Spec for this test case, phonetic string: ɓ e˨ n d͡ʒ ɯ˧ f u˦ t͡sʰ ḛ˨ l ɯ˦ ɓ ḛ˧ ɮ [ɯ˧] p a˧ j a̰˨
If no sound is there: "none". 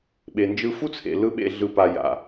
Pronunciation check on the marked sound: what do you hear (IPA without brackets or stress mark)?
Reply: ɯ˧